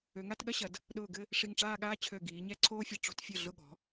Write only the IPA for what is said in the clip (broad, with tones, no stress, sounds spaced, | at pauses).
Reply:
ø˩˧ ŋ a˥˧ t ɠ ɐ˥ ɕ ɐ˩˧ d | ɗ ʊː˧˩ ɡ ɘ˥˧ | ʂ i˧˩ ŋ ʈ͡ʂ aː˥˧ ɠ aː˥ t͡ɕʰ ø˧˩ ɡ iː˩˧ ɲ ɛ˥˧ ǀʰ oː˥ fʲ ɐ˧ ʈ͡ʂ o̤˧ t fʲ ɘ˧˩ ɮ ʊ˧˩ ɠ ɔ̤˩˧